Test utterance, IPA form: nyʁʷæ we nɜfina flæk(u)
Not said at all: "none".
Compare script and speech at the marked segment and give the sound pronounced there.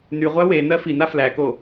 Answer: o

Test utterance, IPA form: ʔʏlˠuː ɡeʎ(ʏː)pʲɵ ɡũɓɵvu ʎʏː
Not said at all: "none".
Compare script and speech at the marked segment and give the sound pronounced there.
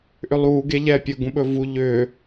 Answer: ɛː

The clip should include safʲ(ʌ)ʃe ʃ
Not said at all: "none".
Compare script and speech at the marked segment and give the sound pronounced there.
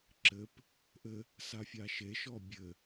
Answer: a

